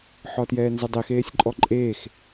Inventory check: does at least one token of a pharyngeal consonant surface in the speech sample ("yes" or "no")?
yes